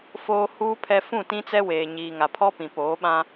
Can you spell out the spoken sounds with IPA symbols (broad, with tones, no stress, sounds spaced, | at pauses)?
f oː˨ h uː˨ pʰ ɛ˨ f ũ˦˨ t ĩ˦ t͡s ɛ˦ w eː˨ ɲ iː˨ ŋ a˨ pʰ ɔ˦ p ĩ˨ p oː˨˦ ɓ ã˦